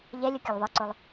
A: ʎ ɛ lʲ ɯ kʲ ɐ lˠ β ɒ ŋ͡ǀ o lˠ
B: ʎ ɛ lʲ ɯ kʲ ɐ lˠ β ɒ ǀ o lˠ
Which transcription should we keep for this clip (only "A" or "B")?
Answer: B